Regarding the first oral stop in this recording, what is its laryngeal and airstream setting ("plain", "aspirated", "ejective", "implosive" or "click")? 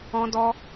plain